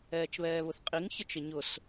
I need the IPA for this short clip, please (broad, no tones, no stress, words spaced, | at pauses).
ɛːt͡ʃβɛːβʊθqʼiŋ çət͡ʃəɲʊs